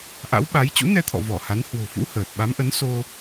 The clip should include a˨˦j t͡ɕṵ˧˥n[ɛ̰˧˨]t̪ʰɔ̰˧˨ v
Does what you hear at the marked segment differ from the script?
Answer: yes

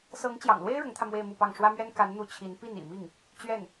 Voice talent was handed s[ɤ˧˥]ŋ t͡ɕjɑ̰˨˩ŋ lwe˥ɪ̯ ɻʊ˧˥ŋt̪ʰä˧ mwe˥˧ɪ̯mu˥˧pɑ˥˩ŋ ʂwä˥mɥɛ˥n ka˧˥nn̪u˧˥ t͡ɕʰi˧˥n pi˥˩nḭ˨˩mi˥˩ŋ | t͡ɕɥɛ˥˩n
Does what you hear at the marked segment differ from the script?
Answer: no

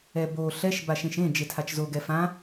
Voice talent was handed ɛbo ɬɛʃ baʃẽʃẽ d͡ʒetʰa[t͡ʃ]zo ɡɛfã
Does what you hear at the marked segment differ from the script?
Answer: no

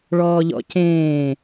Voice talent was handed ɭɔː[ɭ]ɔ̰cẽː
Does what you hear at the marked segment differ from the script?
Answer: yes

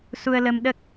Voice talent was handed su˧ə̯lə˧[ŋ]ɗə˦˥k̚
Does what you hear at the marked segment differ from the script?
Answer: yes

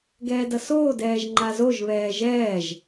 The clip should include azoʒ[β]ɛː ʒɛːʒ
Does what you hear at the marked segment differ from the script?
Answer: no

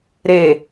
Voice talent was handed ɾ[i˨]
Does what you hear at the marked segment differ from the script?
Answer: yes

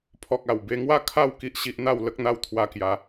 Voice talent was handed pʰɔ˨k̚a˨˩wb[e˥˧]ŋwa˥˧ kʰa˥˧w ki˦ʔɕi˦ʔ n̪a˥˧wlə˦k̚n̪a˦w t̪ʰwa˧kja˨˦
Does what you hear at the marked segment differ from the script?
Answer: yes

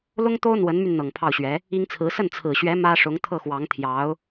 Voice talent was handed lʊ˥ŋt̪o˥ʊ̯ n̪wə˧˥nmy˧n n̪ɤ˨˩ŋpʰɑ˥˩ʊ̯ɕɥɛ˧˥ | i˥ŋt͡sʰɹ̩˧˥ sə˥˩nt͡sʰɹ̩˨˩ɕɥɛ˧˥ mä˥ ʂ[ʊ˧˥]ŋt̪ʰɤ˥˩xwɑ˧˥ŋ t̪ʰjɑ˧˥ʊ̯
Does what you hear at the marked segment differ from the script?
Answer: no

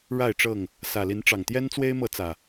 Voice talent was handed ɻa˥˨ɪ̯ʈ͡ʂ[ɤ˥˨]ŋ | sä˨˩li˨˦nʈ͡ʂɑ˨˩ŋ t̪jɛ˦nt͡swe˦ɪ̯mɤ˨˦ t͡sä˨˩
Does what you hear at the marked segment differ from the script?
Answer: no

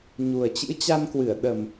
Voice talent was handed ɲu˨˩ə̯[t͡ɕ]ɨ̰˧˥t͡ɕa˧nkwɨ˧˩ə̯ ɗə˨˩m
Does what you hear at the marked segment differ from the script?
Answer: no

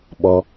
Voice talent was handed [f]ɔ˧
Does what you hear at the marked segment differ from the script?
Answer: yes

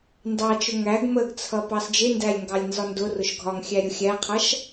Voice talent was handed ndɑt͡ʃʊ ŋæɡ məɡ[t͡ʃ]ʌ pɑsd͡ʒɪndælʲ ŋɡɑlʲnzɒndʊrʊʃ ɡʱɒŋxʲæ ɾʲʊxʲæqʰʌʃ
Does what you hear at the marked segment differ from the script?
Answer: yes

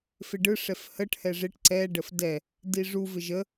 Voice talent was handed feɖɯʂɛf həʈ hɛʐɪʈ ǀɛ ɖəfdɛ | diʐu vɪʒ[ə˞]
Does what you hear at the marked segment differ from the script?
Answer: yes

